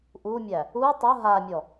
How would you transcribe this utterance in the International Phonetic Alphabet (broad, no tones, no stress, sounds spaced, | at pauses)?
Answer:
ʔ u mʲ æ | u tˤ ʊ ɦ a mʲ ɔ